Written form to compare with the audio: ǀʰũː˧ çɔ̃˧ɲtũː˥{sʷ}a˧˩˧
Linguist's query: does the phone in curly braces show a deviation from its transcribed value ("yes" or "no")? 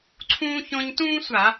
no